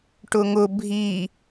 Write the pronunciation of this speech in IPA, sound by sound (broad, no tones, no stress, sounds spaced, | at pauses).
ʈ ʊ ŋ ʊ bʱ i